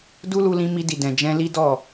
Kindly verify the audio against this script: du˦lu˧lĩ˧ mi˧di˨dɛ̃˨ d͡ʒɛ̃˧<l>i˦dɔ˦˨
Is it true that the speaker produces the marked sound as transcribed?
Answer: yes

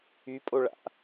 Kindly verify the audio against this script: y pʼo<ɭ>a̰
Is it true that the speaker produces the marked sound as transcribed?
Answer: yes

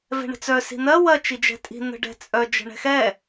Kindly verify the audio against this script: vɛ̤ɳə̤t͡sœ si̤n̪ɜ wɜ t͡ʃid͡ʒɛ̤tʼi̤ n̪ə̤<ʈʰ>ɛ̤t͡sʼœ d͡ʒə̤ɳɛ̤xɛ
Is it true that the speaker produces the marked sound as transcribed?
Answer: no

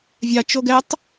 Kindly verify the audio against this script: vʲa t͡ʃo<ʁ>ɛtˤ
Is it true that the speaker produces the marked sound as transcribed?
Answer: no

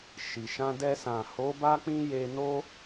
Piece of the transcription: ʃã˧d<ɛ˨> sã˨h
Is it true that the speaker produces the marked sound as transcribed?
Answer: no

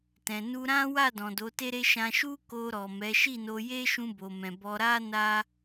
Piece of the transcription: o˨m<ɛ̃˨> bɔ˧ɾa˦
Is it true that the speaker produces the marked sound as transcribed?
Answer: yes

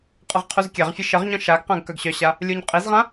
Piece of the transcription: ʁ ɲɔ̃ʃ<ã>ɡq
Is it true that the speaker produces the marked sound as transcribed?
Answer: no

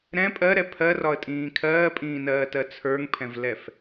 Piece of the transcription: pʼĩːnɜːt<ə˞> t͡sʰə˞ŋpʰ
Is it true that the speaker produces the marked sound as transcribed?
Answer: no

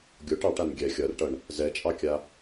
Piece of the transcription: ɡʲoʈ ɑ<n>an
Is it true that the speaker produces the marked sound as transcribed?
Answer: no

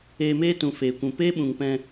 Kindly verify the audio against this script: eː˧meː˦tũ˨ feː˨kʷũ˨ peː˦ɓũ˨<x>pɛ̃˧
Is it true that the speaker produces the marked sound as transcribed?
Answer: no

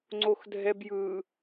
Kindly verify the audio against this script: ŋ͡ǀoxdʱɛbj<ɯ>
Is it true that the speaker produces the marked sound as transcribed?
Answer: yes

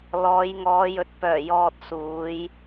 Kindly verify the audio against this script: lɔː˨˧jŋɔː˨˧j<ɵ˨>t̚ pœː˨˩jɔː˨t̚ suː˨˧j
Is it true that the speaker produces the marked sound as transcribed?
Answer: no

